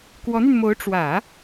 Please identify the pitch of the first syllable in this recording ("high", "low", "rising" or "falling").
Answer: rising